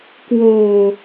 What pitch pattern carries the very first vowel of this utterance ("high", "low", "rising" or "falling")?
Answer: low